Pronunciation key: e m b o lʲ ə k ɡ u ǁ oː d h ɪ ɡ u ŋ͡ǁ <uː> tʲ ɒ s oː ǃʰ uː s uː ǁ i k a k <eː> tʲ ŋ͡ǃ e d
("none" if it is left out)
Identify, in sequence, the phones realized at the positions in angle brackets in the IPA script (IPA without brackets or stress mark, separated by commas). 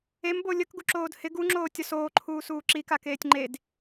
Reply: oː, eː